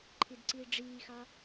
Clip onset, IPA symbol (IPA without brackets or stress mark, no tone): ǃʰ